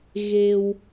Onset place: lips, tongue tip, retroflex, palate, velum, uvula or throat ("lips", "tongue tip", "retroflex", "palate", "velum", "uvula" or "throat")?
velum